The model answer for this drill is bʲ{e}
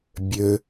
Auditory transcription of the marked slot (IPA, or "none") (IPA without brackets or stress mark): ø